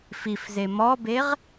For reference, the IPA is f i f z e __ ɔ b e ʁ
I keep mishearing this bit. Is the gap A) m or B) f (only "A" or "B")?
A